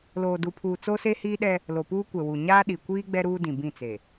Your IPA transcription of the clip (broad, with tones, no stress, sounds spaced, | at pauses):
l oː˨ d u˨ pʰ uː˨ t͡s o˦ s e˦ h iː˦ ɗ ɛ˦ | l o˨ p uː˦ kʷ ɛ˨ w u˨ ɲ aː˦ ɗ i˨ kʷ iː˦ ɡ͡b ɛ˦ ɾ uː˦ d ĩ˨ b ĩ˦˨ t͡s e˨